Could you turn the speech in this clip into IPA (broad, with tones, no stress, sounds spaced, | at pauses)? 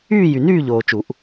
yː˥˨ j y˨ n yː˥˨ ʎ oː˨ t͡ʃ u˨˩˦ ʔ